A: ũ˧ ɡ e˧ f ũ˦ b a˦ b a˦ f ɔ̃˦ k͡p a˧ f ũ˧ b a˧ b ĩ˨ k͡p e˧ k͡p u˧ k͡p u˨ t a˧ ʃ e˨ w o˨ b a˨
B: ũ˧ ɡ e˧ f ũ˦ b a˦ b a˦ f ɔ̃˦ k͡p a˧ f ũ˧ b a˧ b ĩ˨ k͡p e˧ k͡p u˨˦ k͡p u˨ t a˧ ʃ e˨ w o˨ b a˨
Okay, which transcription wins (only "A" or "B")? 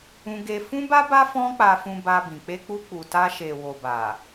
A